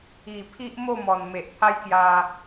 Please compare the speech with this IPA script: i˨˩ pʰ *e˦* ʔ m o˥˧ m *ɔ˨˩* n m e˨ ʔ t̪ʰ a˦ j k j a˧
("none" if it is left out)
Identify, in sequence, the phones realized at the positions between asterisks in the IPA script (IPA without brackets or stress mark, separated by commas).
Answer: i˦, ɔ˨˩